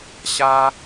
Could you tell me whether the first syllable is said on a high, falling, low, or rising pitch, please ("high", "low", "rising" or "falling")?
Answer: high